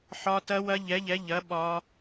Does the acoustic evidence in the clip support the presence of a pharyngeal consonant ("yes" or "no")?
yes